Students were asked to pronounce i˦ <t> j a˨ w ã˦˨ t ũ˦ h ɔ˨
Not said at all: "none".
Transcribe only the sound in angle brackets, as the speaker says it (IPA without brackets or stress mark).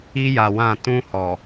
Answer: none